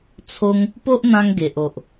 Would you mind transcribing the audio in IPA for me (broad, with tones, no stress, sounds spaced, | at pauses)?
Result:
t͡sʰ o˦ ŋ | p o˦ ʔ n̪ ã˧ ŋ ɡ e˨ ʔ o˨ ʔ